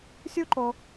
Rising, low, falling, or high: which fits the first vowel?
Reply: high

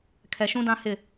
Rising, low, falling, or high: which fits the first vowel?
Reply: low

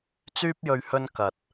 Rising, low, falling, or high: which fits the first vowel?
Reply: high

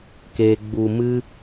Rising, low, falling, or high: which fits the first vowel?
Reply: high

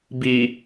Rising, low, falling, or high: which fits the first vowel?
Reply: low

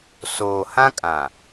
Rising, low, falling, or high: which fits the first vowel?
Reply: low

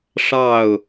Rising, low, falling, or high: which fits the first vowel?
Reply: falling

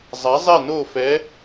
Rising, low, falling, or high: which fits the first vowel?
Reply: rising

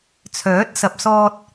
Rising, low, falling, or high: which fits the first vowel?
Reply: rising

